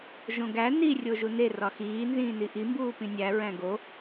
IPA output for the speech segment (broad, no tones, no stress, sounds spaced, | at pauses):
ʒ õ ɡ æ n i rʲ o ʒ u n e r ɒ x iː n z ĩː n i ʔ i m b uː p ĩ nʲ æ ɹ æ̃ ɡ o